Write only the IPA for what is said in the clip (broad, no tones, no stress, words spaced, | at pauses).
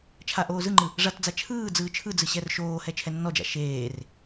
t͡ʃʰa ʔoːzɯŋ͡ǃɯ | ʐatd͡za t͡ʃʰɯːd͡zɯː t͡ʃʰɯd͡zɯ ɕɛrʃoːhɛ t͡ʃʰɛnːɔd͡ʒa̰ ʃeːr